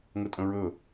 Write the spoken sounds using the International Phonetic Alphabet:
ŋ ɵ tʼ ə̃ ɹ ɵ

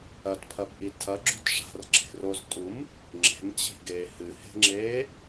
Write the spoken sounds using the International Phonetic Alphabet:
ɐ t pʰ ɐ b ʔ i tʰ ɐ ɡ͡ǁ ṳ t ʂ a̤ r ǁʰ e̤ r o z tʼ u m | ŋ͡ǁ e̤ m t͡ɕ i̤ ɡ eː h ɨ h e̤ ŋ͡ǁ eː

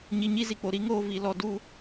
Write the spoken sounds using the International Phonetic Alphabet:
ɲ i˧ ɲ i˦ z i˨ k͡p o˨ ɾ i˦ ŋ oː˧ v i˨ l ɔ˧ d u˦

